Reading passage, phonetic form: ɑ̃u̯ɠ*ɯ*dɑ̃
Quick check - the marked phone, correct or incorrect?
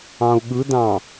correct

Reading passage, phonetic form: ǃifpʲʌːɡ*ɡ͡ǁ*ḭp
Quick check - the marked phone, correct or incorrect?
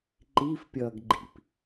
incorrect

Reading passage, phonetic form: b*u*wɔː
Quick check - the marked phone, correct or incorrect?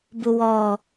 correct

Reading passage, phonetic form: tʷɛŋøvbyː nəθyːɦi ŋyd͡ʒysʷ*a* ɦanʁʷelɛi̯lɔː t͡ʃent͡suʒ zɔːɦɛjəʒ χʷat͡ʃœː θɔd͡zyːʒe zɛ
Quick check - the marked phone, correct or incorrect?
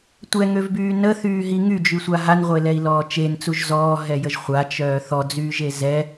correct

